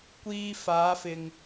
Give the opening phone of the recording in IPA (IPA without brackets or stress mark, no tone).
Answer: kʷ